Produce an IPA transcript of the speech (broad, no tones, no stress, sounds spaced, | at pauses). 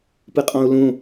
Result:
p ɯ qʼ ɔ̃ u̯ l ũ